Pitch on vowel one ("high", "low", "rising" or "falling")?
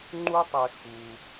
high